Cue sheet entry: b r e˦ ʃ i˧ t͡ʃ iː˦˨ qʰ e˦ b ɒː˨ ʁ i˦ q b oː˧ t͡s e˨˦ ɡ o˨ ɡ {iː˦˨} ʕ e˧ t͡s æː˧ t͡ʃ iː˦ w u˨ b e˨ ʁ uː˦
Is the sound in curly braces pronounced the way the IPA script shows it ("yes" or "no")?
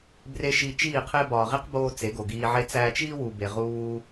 no